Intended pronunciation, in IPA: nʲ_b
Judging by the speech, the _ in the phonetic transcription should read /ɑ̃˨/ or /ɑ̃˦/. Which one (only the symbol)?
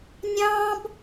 ɑ̃˦